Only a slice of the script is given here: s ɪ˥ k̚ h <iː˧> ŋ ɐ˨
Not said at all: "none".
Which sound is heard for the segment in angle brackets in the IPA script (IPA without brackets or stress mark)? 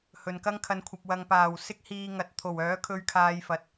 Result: iː˧